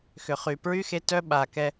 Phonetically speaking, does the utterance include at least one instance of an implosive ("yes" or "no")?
yes